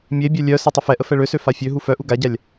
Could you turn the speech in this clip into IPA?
mʲ e bʲ œ lʲ œ s a tˤ ə f ɛ ʔ ə f ɛ ɭ ø s ø f a fʲ ø ɦ u f œ ʔ u ɡ a ɟ a lʲ

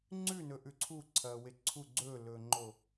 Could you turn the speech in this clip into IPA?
ŋ͡ǀ ʉ n ɵ ʔ ʉ ǀʰ u ǀʰ ɐː w e ǀʰ u ɡ͡ǀ ɵː l ɵː ŋ͡ǃ o

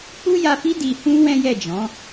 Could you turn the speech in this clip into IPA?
k͡p u˦ j a˧ f i˦ d i˧ h ũ˦ w ɛ̃˦ j ɛ˦˨ d͡ʒ ɔ̃˨˦

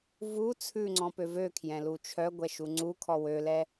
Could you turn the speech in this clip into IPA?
v u t͡sʰ ʉ ŋ͡ǀ ɔ̃ p ø v ø kʰ j ɛ̃ l u t͡ʃʰ œ ɡʷ ɛ ʃ u ŋ͡ǀ u kʰ ɔ w ø l ɛ

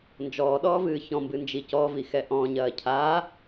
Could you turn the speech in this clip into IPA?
n d͡ʒ ɔː ɗ ɔː v ɨː ç ɔ̃ m b ɨ n d͡ʒ i c ɔ v i x ɛ ʔ ɔ̃ ɲ ɐː cʰ aː

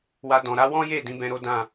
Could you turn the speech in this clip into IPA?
w a˧ d ɔ̃˨ ɾ a˨˦ w ɔ̃˦ j e˦˨ d ĩ˨˦ b ɛ̃˦ ɾ o˦ d ã˦˨

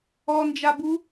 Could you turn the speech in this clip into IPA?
ɔ n d͡ʒ a b u

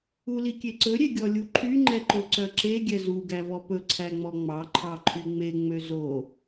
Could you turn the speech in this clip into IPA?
u l i kʲ e ǀ ɵ ɾʲ e ɡʲ ɔ lʲ u ǃʰ y ŋ͡ǃ ɛ ǃ o ǀ œ ǁ e ɡʲ ɛ z u ɡ æ v ɔ p ɵ ǀʰ æ ŋ͡m ɔ ŋ͡m ɑ ǃʰ ɑ ǃʰ y ŋ͡m e ŋ͡m ø z o

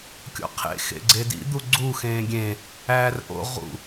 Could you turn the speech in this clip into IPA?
kʲ o̰ qʰ ḛ x ḛ ɡ͡ǀ e d ḭ d̪ u ɡ͡ǀ u x ẽː ɡʲ ẽ | æː r ʔ o̰ ʁ ṵ

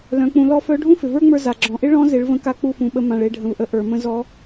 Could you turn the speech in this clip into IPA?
l œ̃˩˧ k͡p ũ˩˧ l ɔ˧˥ f œ˧˥ ɖʱ ũ˥ f ɪ˩ v ə˞˥ ŋ͡m ə˞˧ z a˩ ɡ͡ǁ ɔ̃˩ ʔ ɪ˥ ɭ ɔ̃˧˥ z ɪ˩˧ ɭ v ə̃˧ k a˧˥ k͡p u˧ f ũ˩ ɓ ə˧ m ã˩ ɭ e˩˧ ɖʱ ə̃˩ v ʔ ə˩˧ ʔ ə˞˩ m ə̃˧ z ɔ˧˥

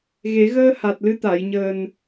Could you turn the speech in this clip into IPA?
ɣ e˨˩˦ ɣ əː˧ h a˨˩ t̚ l ɨ˧ t̪ a˨˩˨ j ɲ əː˨˩ n

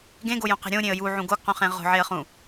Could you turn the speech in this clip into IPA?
ɡ ẽ ɡ o j õ q e̤ ɾʲ õ ɾʲ ẽ ə̯ j u ʕ ũ ɡ o ɡ q ũ χ ẽ ʁ o̤ ʕ e ə̯ χ ũ

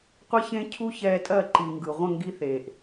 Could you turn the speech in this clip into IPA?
qʷ ɛ˦ ç ẽ˦ cʰ u˦ ç ɛː˧ tʼ ɜ˦˨ ǃ i˨ ŋ ɡ ɯ˨ ʁʷ ə̃˦˨ ŋ ɡ i˧ θ eː˨ ʔ

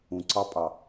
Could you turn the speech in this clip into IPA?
ũ ǀ ɑ pʼ ɑ

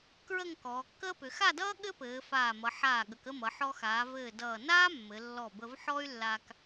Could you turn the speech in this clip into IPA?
k ɹ ə˥˧ ŋ k ɔː˩˧ kː əː˥ p ʏ˩˧ x a˥˧ d ʌː˥ ɠ ɘ˥ p ɘː˩˧ f aː˧˩ m ʌ˩˧ ħ aː˧˩ ɠ ə˩˧ k ə˥˧ m ʌ˩˧ ħ ɔ˧ x aː˩˧ v ɘː˧˩ d ʌː˧˩ n aː˥ mː ɘ˩˧ lː ɔ˧˩ b ə˧ v ħ ɔ˥ y̯ lː a˧ k

